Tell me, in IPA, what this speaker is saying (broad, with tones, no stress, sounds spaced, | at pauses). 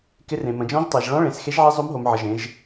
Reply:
k ɪ˧˥ r ẽ˩˧ m ə̃˩˧ d͡ʒ ɔ̃˧˥ ʒ tˤ e˩˧ ʒ ɭ ɔ̃˧˥ ɭ ẽ˩˧ s x e˧˥ ʒ ʕ e˧˥ zˤ o˧˥ m ɦ o˩˧ m ʕ ə˩˧ ʒ ẽ˩˧ ʒ